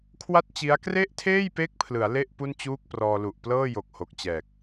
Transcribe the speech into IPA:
kʰ w a˥˩ t̚ t͡ɕ i˦˥ a̯ k r e˥˩ ʔ tʰ eː˥˩ j p e˦˥ k̚ pʰ l ɯ˩˦ a̯ l e˥˩ ʔ p u˥˩ n t͡ɕ uː˥˩ k̚ p r ɔː˧ l u˨˩ ʔ p l ɤː˥˩ j o˨˩ k̚ h o˨˩ k̚ t͡ɕ ɛː˨˩ k̚

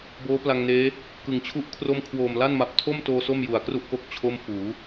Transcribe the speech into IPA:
b oː˦˥ p l a˧ ŋ n eː˦˥ | k ɯ˨˩ ŋ t͡ɕʰ u˥˩ ʔ kʰ r o˥˩ m kʰ w oː˨˩ m l a˥˩ n m a˨˩ p̚ tʰ o˥˩ m t oː˧ s o˥˩ m j u˨˩ a̯ k r u˥˩ ʔ k o˦˥ k̚ t͡ɕʰ o˥˩ m f uː˩˦

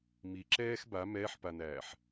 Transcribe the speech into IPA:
m i ǁ ɛː x b a m ɛː ħ p a n æː ħ

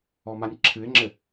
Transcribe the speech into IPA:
ɔ m a nʲ ǁʰ ɨ ɪ̯ ŋ͡ǁ ɘ

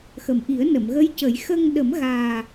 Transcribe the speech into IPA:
x ə˨˩ m ʔ i˨˩˦ ə̯ n ə˨˩˨ m ɣ ə˧˥ j c ə˨˩˦ j x ə˧ ŋ ɗ ə˨˩˦ m ɣ aː˨˩

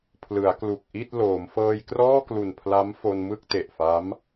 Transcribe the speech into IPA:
pʰ l ɯ˩˦ a̯ k l u˨˩ k̚ ʔ i˥˩ t̚ l oː˩˦ m f ɤː˧ j k r ɔː˥˩ k l u˨˩ n pʰ l a˦˥ m f o˧ n m ɯ˥˩ k̚ t e˨˩ ʔ f a˦˥ m

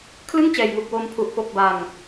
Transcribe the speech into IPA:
kʰ l ɯ˥˩ ŋ t͡ɕ ɛː˨˩ j ŋ u˨˩ k̚ w oː˧ m pʰ u˨˩ ʔ p o˨˩ k̚ b a˨˩ ŋ

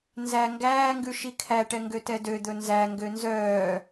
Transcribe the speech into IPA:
n z æ ŋ ɡ æː ŋ ɡ ʉ ʃ i kʰ æ ʈ ɛ ŋ ɡ ø t ɛ d ø d̪ ɵ n z æ ŋ ɡ ø n z œː

